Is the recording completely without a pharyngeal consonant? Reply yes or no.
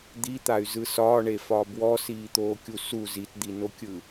yes